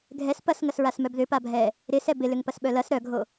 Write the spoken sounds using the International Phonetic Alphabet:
ɡʱ ɛ s p ɐ s ŋ ɐ s ɹ a s m œ b ð ʏ p a bʱ ɛ | ɾ ɪ s ɛ b ɪ l ʏ ŋ p ɐ s ɓ œ l ɐ s ɾ œ ɡʱ o

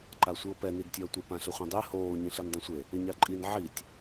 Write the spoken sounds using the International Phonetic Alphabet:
ǃ a sʷ i o̯ p ɛ n i d tʲ ʌː tʷ ɪ p ã ɬ ɪ χʷ ẽ dˤ e h oː ɲ ĩ ɬ i n dˤ ĩ sʷ e | ɪ ɲ a ǃʼ i n ʕ i tʲ

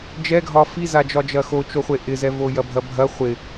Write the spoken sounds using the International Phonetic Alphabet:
d͡ʒ ɛ ɡʱ ɒ f i z a d͡ʒ ɒ d͡ʒ ɐ x o t͡ʃ o χʷ e ʔ ɪ z ɛ v o j ɐ bʱ ɐ bʱ ɐ χʷ ɪ

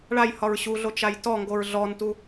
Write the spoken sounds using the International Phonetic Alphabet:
ɭ a j h ɒ ɹ ɕ u ɮ o t͡ʃ a j t ɔ ŋ ɡ o ɹ ɮ ɔ n t u

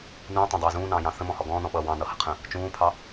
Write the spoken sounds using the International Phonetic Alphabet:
n ũː tˤ ɛ̃ dˤ ʌː z ũː n ɑ̃ː j ɑ̃ θ ə̃ m ɔ̃ h ɔ ɡ ɔ̃ː n ɔ̃ ɓ ʌː w ɑ̃ n ʌ h ə qʰ ə̃ | t͡ʃ ũː pʰ ɑ

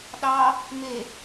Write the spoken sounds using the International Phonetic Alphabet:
ɗ ɑ | m e

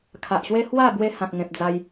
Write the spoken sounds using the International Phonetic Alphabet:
kʰ a˨ ʔ ɕ w e˦ h w a˥˧ b w e˦ h ã˨ k̚ ŋ ẽ˨ p̚ d͡z a˧ j

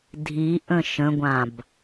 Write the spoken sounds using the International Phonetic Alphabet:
dʱ i ʔ ə̃ ʃ ə̃ ɡʷ ã b

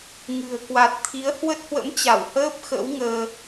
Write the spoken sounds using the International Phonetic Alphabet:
ŋ ɨ̤˨˩ ə̯ k w a˨˩ t̚ t̪ʰ i˨˦ ə̯ h w ə˦˥ t̚ h w ə̰˧˥ m t͡ɕ a˧˩ w h əː˦˥ p̚ x ə̰˧˥ w ŋ əː˧

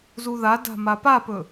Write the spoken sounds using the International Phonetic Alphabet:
z u ð a d a̤ m a p a p ɵ

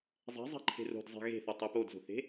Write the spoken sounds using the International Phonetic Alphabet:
zˤ ɛ̤ zˤ ɛ̤ ǃʰ e̤ r o̤ d zˤ e̤ ɣ e̤ θ ʌ tˤ e p o d z o̤ θ e̤

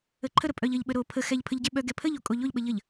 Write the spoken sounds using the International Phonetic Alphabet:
ə ǃʰ ə ɾ ə pʼ œ ʎ ə ʎ ɓ ə ɾ o pʰ ə x ɛ ʎ pʰ ə ʎ ɟ ɛ ɓ œ ɡ ɛ pʰ ə ʎ o kʼ o ʎ o ʎ ɓ ə ʎ ə ʎ

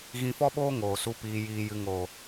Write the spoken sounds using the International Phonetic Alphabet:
ɣ ĩ˧ f ɔ˦ ɓ oː˦ ŋ oː˨ s u˧ p iː˧ j iː˧ j ɨ˧ ŋ o˨

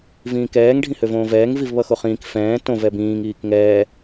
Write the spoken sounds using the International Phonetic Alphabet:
v ĩː k ɛː ŋ ɖʱ ĩ h ø v õː v ɛː ŋ v i v β ʌ x o χ ĩː k f ɛ̃ː t õ v ɛ b ĩː ŋ iː k ŋ ɛː

